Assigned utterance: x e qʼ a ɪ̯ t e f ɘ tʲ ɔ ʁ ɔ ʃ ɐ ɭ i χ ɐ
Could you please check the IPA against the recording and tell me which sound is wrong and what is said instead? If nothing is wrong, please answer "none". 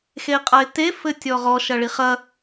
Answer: none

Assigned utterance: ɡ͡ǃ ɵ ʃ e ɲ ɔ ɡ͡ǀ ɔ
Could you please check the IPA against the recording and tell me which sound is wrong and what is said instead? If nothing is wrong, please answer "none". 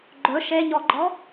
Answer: ɡ͡ǀ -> ɡ͡ǃ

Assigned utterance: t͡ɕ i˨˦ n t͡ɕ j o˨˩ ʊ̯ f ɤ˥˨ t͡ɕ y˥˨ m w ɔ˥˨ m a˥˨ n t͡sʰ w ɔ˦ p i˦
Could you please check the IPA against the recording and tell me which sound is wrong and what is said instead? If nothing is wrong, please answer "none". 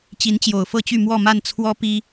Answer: none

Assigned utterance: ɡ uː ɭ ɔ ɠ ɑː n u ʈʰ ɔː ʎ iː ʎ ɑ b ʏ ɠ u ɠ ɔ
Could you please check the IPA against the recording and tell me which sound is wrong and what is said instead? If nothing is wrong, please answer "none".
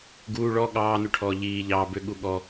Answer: none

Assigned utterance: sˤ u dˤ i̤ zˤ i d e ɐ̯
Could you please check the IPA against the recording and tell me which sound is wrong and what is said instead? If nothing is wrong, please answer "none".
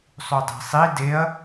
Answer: zˤ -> sˤ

